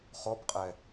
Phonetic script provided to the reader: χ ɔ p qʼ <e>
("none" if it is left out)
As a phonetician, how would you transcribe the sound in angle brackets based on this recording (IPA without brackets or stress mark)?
ɛ